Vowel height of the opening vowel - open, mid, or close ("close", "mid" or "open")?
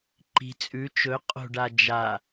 close